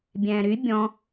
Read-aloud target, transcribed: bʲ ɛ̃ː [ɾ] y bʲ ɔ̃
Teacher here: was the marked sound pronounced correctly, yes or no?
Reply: yes